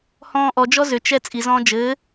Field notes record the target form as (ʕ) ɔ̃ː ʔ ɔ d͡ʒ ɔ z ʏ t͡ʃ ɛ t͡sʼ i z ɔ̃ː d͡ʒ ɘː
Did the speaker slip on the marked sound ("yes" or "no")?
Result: yes